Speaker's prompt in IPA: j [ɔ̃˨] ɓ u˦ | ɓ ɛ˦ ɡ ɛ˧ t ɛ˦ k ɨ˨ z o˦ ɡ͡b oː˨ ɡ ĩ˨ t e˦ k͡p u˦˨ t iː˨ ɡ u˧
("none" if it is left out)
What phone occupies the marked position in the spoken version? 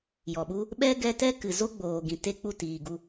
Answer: ɔ˨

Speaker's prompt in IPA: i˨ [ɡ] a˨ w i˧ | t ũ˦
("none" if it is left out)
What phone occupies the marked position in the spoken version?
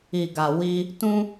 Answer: ɡ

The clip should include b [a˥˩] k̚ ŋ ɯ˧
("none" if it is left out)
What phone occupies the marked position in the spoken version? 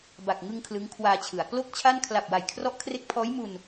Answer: a˨˩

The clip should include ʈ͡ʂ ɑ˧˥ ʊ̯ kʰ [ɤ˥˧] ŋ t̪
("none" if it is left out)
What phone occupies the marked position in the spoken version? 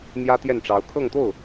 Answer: ɤ˥˧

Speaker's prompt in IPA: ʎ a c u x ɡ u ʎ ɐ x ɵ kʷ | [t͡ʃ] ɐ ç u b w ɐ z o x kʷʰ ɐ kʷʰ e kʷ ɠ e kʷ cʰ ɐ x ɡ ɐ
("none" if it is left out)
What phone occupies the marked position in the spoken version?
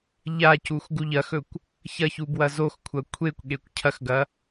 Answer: ç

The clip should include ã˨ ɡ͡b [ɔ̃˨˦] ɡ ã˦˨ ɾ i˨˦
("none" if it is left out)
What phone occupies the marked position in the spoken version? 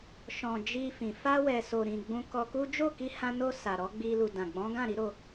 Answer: ɔ̃˨˦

